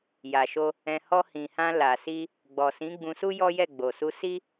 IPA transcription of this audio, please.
j a˨ ʃ o˧ | ɛ̃˧ h ɔ˧ h ĩ˨ h ã˧ l a˨ s i˧ | ɡ͡b ɔ˨ s ĩ˨˦ ɡ͡b ũ˧ s u˦ j ɔ˦ j ɛ˦˨ ɡ͡b o˨ s u˧ s i˦

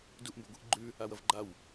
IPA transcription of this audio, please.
d u ʔ m b ɵ ɡʷ i ʔ ɡ͡ǃ ʉ | a w ɐ v ɡ͡ǃ a w

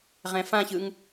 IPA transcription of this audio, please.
ʁ ɛ̃ f ã ç ɯ ŋ

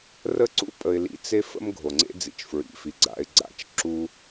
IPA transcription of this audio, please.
r ə˦ ǀ ṵ˥ pʼ ə˨ ɪ̯ l ḭ˨ t͡s e˦ f ə̰˦ m ɡʱ o˩ ŋ͡ǀ ḛ˦ d͡z ḭ˩ t͡ʃ f ɹ ḭ˩ f i˩ ɡ͡ǀ a̰˨ ɪ̯ ɡ͡ǀ a̰˦ t͡ʃ ǁ u˦

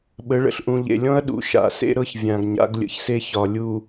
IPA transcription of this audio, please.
ɓ ə˨˦ ɭ ə̰˨ ɬ ʔ ũ˨ ʎ ḛ˨ lʲ ɔ̃˦ ɐ̯ ɗ ṵ˨ ʃ a̰˨ s ḛ˦ ɾ ɤ˦ ç vʲ ã˨ ɡ ɲ a̰˨˦ ɡ lʲ ə̰˨ ç s e˦ ç ɒ˨ lʲ u˨

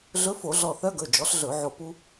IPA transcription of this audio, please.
ɮ ɵ˧˥ f o˧˩˧ ɮ ɔ˧˩ θ œ˧˥ ɡ ɵ˩˧˩ d͡ʒ ɔ˩˥ ɬ ɮ ɵ˧˩˧ ʕ o˧˩ p u˧

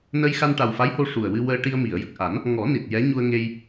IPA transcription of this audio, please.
n ə˧ j x a˧ n ʈ a˨˩ w f a˧˥ j h o˧ ʂ u˨˩ ə̯ w ɨ˧ w əː˧ ʈ i˧ ə̯ m i˨˩˨ ə̯ j ə˨˩ k̚ ʔ a˨˩˦ n | ŋ ɔ˨˩˦ n i˨˩ t̚ j ɛ˧˥ ɲ u˧ ə̯ ŋ e˧ j

